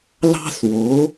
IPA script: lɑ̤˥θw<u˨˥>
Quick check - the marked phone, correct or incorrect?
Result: incorrect